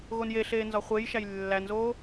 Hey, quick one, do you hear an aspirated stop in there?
no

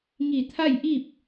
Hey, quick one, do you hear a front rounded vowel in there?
no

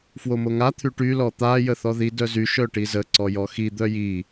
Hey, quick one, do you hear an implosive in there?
no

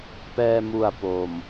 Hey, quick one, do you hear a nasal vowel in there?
no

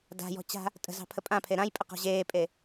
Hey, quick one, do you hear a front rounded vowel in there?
no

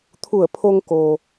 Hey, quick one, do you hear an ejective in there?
no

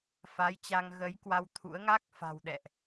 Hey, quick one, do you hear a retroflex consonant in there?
no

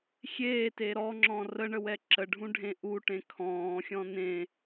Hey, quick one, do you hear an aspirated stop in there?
yes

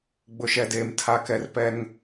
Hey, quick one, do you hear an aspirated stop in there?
yes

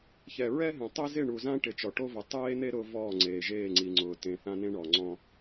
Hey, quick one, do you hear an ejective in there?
no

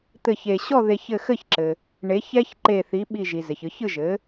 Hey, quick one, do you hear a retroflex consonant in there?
yes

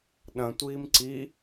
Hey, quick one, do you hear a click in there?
yes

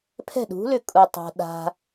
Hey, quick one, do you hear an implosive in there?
yes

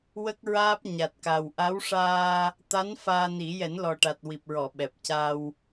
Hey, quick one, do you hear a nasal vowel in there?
no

